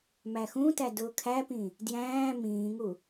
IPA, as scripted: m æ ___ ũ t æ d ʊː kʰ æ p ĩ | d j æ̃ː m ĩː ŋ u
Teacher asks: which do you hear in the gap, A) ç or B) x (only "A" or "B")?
B